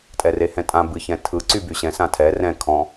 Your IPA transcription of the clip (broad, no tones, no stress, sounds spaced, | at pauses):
tʼ ɛ r e h ɛ̃ tʼ ã b ɨ ç ɛ̃ tʰ ɯ ǀ y b y ɕ ɛ̃ s ã tʰ ɛ r ɛ̃ kʰ ɔ̃